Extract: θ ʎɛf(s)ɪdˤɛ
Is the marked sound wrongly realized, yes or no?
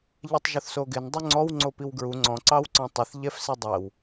no